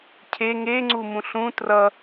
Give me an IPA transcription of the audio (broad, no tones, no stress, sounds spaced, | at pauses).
cʰ e ŋ e ŋ͡ǀ u m ũ ɬ ũ t r ʌ